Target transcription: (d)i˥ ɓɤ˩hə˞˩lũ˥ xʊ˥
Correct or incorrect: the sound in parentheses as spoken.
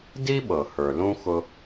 correct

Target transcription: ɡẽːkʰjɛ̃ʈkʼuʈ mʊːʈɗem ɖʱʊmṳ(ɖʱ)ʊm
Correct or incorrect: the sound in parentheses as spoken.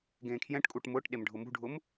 correct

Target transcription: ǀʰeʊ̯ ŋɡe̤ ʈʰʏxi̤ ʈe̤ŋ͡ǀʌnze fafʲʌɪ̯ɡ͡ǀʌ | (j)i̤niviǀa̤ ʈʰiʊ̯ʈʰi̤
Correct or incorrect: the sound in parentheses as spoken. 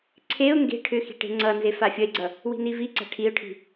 incorrect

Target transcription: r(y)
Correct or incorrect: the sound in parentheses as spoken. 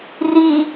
incorrect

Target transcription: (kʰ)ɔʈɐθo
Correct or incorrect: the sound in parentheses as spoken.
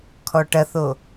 correct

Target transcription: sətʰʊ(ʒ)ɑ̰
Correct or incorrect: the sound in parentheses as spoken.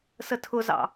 incorrect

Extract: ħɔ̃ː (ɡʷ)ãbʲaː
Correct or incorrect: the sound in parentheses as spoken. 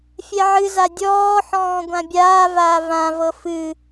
correct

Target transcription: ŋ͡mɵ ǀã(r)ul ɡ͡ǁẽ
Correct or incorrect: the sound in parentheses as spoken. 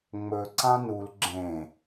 incorrect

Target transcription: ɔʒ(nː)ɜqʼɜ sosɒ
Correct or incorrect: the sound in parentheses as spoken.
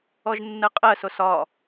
correct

